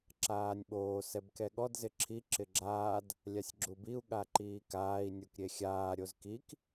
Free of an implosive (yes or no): no